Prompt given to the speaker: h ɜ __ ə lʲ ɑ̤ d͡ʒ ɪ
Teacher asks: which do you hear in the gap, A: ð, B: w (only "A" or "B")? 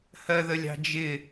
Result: A